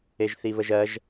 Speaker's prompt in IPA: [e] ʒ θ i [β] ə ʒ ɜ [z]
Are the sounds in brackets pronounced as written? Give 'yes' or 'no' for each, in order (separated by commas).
yes, yes, no